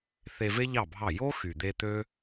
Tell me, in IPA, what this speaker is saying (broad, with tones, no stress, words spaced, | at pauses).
θe˧ve˦ ʎɑ˦˨bʱɑ˦˨ jo˦xy˨d̪e˧ t̪ø˦